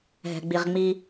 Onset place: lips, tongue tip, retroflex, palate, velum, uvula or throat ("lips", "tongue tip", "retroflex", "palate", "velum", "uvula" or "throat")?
throat